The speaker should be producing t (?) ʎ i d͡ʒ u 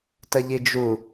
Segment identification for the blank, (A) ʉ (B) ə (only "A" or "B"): B